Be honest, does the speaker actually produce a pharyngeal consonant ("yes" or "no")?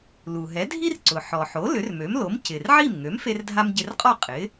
yes